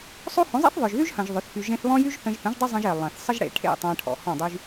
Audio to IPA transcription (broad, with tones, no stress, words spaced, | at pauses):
sˤo˦hõ˨˦ zˤḛ˦θðˤœ˨ʒðy˦ʒhɐ̃˨ʒ ðˤø˨˦θfy˧ ʒẽ˧θβɔ̃˦jy˦ʒ θə̃˧ʒ θə̃˨˦ʒdˤy˦ zˤə̃˧ʒe˨ lˠɐ̃˨θsˤə˦ʒɽḛ˨ ʈʰḛ˦˨tˤɐ̃˧ʈʰɔ̰˨ hɔ̃˦˨dˤy˦ʒ